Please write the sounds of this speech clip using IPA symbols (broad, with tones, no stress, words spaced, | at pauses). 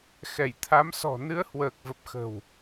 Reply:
xɛ˧˩jt̪ʰa˨˦msɔ̤˨˩ nɨ˨˦ə̯hwəː˨˩k̚və˨˩p̚ xə̤˨˩w